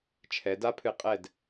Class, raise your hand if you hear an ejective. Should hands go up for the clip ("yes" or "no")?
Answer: yes